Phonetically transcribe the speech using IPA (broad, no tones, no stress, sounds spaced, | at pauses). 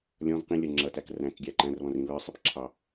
lʲ ɔ̃ v q ĩ lʲ ʌ ŋ͡ǁ ʌ t æ k r æ̃ k ɡʲ æ ǃ æ̃ r β ɔ̃ r ĩ β ə˞ sˤ ɛ p ǁʰ ɑ